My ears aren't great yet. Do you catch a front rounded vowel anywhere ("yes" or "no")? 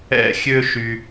yes